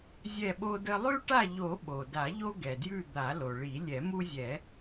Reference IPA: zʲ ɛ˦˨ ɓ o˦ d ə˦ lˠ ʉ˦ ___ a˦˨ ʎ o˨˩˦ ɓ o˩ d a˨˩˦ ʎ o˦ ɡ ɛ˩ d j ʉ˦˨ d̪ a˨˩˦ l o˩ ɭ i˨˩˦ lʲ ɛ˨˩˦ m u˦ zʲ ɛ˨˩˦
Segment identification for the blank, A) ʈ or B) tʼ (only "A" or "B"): A